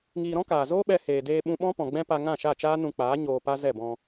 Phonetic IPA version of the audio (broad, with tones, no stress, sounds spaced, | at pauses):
ŋ iː˧ ɾ ɔ̃˦ k aː˨ z oː˦ ɓ ɛ˧ h eː˨ d eː˧ ɓ ũ˧ ɓ ɔ̃˦ p ɔ̃˨ ɡ͡b ɛ̃˦ p a˧ ŋ ã˦˨ ʃ a˦˨ t͡ʃ aː˦ n ũ˧ k͡p aː˨˦ ɲ oː˧ p a˦ z ɛ˦˨ b ɔ̃˧